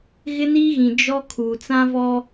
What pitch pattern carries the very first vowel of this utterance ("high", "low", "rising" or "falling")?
high